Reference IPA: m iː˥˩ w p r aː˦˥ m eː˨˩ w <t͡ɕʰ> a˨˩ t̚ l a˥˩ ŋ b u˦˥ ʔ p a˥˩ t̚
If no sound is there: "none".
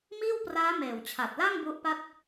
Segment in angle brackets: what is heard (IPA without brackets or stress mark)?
t͡ɕʰ